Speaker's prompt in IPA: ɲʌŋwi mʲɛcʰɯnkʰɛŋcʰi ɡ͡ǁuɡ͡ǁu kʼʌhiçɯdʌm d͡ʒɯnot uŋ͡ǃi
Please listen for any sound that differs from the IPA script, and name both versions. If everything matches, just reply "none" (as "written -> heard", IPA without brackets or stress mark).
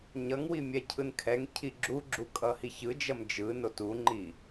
d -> d͡ʒ